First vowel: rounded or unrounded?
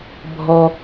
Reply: rounded